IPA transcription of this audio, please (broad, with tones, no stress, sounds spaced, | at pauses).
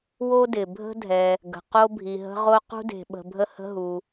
w o˥ d ɪ˩ bʱ ə̤˥ dʱ ɛ˩ | ɡ ə̤˩ q o˥ bʱ i˩ ɦ ə̤˥ ʁ o˥ q ṳ˥ d e̤˩ ɓ ə̤˩ bʱ ə˥ h ə̤˥ ɦ u˩